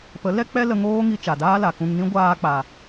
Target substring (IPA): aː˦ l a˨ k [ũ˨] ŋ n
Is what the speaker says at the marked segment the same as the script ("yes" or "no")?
no